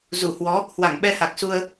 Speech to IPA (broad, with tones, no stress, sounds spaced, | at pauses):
z u˧˩ h w ɔ˨˦ | h w a˧˩ ŋ ɓ ɛ˧ h a˨˩ k̚ s u˧ ə̯